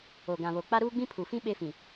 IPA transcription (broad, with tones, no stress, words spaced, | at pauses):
o˨ɡã˨βo˨ k͡pa˦ɾuː˦ɡ͡bĩ˦ pʰu˨fĩ˦ ɓe˦fĩ˨